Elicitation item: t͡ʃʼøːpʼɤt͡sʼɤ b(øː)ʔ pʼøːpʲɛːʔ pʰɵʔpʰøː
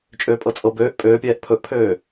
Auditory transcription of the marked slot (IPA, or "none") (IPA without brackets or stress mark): øː